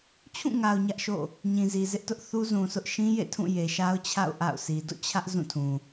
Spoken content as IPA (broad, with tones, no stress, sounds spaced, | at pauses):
t͡ɕʰ ũ˦˨ ŋ a˨ ʊ̯ ɲ ä˦ ʔ ʃ o̰˦˨ | ɲ ĩ˨ z i˨ z ɪ˦ ʔ t ʊ˦ ʔ θ u˦ z ũ˨ s ʊ˦ ʔ ʃ ĩ˦ j ḛ˦˨ tʰ ũ˦˨ j e˨ ʃ a˦ ʊ̯ t͡ɕʰ a̰˦˨ ʊ̯ ʔ a̰˦˨ ʊ̯ s i˨ d o̰˦˨ t͡ɕʰ ä˦ ʔ z ũ˦˨ tʰ ũ˨